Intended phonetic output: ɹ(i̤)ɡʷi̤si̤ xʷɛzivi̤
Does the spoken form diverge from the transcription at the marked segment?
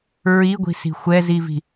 yes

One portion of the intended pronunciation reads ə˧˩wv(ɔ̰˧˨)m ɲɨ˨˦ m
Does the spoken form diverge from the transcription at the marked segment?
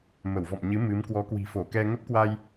no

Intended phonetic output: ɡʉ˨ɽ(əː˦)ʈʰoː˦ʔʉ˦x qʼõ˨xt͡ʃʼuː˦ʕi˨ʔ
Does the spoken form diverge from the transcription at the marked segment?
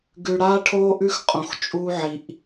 yes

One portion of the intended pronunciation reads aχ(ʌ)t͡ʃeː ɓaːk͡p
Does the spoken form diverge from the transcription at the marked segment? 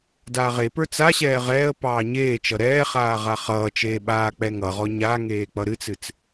yes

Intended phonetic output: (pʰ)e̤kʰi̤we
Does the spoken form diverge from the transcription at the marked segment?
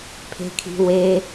no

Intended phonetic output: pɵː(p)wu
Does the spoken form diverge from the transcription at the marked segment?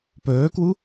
yes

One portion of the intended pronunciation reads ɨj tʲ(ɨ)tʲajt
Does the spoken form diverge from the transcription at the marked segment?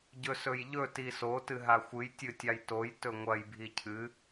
no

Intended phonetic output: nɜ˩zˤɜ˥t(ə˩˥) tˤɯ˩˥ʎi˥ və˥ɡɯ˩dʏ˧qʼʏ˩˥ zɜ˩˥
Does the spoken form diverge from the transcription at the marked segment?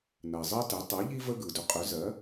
yes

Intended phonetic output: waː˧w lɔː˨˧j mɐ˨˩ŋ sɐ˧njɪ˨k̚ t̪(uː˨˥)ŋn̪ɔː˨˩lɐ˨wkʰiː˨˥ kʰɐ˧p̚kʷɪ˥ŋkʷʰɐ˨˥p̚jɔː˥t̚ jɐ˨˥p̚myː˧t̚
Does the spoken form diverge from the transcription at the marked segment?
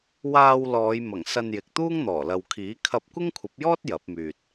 yes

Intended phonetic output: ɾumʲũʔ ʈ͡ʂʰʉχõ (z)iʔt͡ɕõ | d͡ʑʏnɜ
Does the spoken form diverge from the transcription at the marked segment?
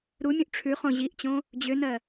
yes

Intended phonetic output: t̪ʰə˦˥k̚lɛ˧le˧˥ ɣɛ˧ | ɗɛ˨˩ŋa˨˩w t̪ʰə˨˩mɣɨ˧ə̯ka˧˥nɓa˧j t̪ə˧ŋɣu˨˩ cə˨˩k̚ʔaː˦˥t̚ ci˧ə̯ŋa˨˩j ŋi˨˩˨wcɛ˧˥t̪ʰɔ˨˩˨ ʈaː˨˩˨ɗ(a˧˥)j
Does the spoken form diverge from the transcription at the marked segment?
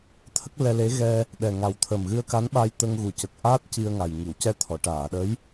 yes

